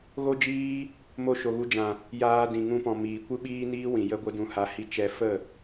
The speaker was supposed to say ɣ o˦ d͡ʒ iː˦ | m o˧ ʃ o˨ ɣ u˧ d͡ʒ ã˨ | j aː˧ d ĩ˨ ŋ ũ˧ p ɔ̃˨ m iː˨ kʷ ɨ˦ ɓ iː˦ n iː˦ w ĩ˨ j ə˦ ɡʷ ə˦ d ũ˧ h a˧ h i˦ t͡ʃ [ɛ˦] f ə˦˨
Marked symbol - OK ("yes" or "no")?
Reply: yes